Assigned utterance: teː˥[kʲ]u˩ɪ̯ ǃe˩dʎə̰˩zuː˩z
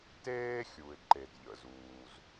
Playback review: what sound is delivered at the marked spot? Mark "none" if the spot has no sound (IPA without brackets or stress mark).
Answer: xʲ